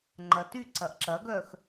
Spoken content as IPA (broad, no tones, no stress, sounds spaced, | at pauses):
ŋ͡ǃ ɐ t y ǀ ɐ ʔ ǁ ɐ ɡ œ x